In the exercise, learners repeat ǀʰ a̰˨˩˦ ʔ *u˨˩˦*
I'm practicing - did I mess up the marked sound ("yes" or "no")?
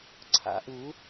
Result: no